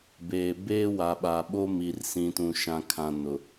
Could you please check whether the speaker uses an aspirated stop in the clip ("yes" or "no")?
yes